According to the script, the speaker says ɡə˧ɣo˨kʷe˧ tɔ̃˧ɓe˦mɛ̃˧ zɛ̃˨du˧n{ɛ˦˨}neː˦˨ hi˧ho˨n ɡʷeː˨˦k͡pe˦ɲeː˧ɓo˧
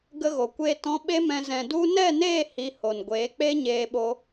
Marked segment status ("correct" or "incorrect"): correct